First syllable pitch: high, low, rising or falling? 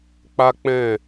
high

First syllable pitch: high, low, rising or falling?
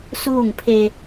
falling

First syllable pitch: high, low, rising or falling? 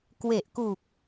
low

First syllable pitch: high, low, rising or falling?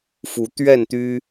rising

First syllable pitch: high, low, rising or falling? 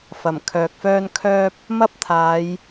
low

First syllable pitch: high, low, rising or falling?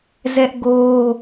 high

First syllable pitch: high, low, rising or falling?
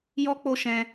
high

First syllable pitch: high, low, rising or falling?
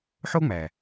high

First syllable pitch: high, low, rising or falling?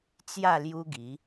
falling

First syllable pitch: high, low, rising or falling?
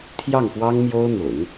falling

